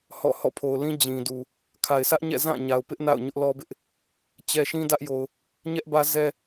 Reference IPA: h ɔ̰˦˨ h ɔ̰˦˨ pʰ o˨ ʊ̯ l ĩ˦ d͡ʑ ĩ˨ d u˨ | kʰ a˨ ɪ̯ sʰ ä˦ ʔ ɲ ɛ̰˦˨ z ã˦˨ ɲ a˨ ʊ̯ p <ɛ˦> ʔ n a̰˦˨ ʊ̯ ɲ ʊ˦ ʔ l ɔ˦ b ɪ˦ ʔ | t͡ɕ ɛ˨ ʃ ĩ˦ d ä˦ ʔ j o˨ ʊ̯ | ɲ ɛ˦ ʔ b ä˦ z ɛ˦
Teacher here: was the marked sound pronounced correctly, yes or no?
no